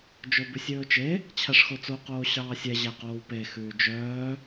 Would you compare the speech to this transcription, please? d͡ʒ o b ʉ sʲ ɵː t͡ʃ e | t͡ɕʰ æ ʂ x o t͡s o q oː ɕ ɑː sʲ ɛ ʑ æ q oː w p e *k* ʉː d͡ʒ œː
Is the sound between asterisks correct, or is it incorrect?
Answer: incorrect